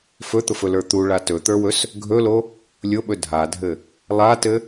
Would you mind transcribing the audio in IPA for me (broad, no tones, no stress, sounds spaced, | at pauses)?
f ɵ t̪ ʊ f ɵ l ə˞ t̪ u ɭ a t ɵ t̪ ə˞ w ɵ s | ɡʱ ɵ l o | lʲ ʊ ɓ ɵ dʱ a dʱ ɘ | lˠ a t ɘ